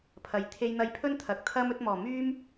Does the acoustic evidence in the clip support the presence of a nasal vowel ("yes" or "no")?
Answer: no